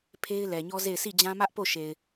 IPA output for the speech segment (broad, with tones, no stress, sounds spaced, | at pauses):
pʰ e˦ ɪ̯ l ɛ˨ ɲ ɔ˦ z e˦˨ ɪ̯ sʰ i˦˨ d͡ʑ ã˦ m ä˦ ʔ p o˦˨ ʃ e˨ ɪ̯